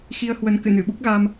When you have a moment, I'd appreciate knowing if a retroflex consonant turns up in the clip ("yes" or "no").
no